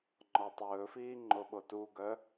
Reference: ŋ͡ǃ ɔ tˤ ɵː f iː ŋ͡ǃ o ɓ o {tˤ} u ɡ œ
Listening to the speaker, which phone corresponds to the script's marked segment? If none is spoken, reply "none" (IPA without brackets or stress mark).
t